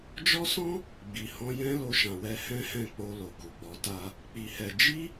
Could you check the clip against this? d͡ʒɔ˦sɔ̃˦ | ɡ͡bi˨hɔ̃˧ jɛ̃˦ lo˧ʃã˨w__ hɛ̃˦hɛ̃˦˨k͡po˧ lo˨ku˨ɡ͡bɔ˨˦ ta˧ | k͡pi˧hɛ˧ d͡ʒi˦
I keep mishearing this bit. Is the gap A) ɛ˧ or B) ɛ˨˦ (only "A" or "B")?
A